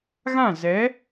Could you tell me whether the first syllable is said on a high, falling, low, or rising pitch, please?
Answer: falling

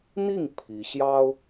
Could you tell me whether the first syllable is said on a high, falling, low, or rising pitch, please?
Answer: falling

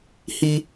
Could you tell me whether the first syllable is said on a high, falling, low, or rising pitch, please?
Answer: high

